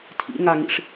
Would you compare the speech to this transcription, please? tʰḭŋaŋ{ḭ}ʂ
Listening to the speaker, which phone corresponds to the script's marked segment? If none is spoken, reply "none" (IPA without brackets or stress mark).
ḭ